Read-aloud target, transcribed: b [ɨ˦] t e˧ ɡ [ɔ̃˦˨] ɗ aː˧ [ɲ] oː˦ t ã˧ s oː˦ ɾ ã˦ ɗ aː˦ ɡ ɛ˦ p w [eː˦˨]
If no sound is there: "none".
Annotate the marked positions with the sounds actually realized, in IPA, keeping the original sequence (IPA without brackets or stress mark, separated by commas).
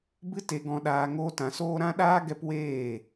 ɨ˦, ɔ̃˧, ŋ, eː˦˨